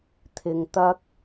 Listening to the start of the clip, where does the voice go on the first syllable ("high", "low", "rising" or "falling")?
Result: low